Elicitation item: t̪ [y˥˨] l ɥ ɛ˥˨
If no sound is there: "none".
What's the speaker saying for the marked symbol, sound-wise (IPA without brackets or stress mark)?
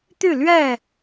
y˥˨